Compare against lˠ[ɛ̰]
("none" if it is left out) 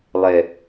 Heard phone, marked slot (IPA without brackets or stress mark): ɛ